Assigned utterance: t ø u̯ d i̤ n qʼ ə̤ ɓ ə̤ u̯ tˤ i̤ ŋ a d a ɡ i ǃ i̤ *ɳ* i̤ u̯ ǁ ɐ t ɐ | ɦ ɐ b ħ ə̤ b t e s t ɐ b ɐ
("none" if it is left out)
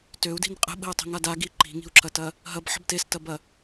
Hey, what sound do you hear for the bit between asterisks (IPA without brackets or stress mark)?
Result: ŋ